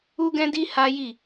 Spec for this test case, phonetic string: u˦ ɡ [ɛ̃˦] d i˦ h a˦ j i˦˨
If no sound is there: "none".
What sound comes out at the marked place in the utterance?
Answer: ɛ̃˦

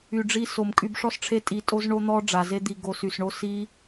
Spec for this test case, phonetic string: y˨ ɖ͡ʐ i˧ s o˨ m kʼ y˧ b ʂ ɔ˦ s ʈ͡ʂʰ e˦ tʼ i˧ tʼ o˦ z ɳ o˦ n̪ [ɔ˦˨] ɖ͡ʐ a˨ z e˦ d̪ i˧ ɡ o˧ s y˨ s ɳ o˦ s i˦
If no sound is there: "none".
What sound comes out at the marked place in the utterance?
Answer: ɔ˦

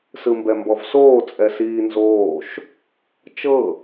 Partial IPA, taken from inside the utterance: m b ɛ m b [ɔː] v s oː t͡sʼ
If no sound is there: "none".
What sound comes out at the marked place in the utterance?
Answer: ɔ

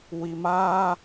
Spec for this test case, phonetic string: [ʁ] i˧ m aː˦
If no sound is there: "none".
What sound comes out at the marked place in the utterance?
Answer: w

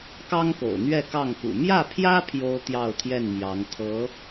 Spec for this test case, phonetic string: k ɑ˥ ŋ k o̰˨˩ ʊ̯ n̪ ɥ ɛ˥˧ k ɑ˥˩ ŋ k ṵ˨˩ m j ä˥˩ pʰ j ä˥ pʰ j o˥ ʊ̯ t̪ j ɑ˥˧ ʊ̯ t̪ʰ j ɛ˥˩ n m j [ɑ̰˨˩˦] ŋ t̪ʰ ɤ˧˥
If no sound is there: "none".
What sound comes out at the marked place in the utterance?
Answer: ɑ˧˥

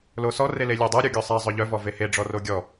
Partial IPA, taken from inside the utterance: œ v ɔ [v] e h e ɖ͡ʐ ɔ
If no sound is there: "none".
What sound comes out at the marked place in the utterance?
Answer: v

